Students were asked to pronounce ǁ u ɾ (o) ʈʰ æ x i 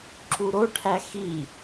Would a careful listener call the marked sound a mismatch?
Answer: no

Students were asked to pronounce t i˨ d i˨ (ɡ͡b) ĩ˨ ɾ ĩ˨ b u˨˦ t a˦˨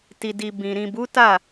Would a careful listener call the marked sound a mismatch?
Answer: yes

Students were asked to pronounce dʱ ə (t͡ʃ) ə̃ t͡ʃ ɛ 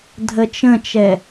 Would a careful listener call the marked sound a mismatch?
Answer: no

